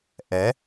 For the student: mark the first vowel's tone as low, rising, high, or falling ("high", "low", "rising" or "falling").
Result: rising